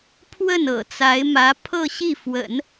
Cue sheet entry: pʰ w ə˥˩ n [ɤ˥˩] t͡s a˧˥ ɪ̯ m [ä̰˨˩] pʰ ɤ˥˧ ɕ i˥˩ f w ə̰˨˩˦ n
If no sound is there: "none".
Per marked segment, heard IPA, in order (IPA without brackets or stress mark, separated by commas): ɤ̰˨˩, ä˧˥